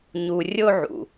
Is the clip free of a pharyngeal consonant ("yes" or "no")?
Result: no